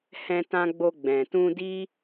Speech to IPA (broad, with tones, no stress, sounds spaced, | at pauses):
h ɛ̃˧ t ã˧ ɡ͡b o˧ ɡ͡b ɛ̃˨ t ũ˧ d i˦